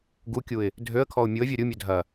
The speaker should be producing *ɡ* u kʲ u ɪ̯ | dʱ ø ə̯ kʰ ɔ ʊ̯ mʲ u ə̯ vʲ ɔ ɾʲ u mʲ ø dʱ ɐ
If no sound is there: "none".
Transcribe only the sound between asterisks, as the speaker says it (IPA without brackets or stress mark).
ɡ